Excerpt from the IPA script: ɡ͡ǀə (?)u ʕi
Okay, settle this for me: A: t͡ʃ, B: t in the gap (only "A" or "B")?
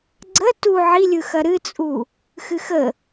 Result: B